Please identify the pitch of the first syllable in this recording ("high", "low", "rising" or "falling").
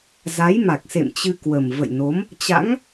rising